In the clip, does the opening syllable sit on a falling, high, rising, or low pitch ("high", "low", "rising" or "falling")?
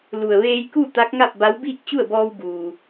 low